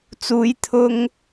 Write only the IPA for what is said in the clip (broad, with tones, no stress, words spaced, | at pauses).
t͡suː˨˧jt̪ʰʊ˧ŋ